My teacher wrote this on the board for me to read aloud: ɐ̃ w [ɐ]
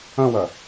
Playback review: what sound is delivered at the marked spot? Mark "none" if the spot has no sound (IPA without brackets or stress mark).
ɐ